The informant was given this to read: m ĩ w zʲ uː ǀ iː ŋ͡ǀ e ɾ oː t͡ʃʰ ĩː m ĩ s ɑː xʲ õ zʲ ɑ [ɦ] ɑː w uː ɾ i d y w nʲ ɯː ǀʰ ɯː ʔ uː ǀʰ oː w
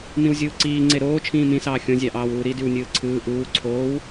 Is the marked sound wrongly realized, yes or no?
yes